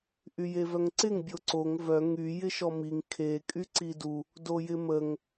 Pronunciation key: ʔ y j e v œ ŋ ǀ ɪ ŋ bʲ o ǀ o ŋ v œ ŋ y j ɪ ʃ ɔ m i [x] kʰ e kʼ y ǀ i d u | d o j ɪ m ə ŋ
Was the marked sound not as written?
yes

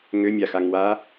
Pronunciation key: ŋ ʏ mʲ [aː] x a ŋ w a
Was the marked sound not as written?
yes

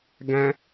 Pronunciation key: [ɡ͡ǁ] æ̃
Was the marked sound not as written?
yes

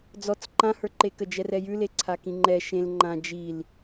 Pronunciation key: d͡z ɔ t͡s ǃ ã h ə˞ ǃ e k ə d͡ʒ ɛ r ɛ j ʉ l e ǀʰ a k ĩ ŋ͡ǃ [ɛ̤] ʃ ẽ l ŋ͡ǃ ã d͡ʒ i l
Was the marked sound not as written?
yes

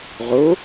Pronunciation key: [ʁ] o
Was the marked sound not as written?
no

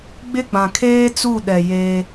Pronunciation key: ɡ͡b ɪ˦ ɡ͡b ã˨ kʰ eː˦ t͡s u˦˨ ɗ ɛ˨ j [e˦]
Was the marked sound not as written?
no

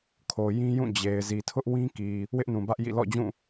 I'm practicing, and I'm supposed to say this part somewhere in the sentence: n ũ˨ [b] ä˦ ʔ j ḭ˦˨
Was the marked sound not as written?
no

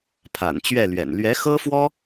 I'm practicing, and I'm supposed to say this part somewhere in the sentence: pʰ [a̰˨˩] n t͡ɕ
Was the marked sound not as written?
no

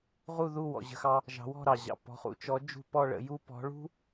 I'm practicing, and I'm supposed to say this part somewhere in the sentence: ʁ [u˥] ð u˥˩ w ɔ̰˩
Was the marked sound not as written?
yes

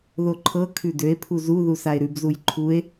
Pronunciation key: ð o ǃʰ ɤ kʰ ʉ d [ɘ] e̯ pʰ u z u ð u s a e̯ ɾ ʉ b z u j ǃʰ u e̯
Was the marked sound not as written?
yes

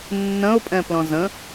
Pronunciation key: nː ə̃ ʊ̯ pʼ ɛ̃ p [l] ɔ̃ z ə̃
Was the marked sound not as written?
no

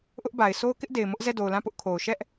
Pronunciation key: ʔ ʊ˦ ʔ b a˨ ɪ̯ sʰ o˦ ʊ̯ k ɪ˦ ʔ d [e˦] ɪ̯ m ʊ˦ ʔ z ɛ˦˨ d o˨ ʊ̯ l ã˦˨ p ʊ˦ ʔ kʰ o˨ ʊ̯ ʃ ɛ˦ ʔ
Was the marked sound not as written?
yes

